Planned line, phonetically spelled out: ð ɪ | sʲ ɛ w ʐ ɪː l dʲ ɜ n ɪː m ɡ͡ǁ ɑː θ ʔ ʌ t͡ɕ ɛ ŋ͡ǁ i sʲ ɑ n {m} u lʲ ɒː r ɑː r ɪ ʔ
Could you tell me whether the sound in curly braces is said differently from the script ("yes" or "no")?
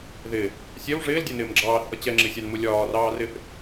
no